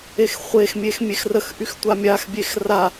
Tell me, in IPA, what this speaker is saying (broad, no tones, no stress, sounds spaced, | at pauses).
e x χʷ e x mʲ e x mʲ e x r ə x ʔ y x tʷ a mʲ a x bʲ e x r a